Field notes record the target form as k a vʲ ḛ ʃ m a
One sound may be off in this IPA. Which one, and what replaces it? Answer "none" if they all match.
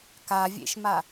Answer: none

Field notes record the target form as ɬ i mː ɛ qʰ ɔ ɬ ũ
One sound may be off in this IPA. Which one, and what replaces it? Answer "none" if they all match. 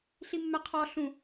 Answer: none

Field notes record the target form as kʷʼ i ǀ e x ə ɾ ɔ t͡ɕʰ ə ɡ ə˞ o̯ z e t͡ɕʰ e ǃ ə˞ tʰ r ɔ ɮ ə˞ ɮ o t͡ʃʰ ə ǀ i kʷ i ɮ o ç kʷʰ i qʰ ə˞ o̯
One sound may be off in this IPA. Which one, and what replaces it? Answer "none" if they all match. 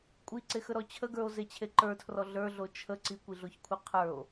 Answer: none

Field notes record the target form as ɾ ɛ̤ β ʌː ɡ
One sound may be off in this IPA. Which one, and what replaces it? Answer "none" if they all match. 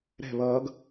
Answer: none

